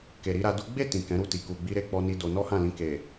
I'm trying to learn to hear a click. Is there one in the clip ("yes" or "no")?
no